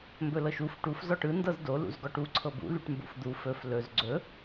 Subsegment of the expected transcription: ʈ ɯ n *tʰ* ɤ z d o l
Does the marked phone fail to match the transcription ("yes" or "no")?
yes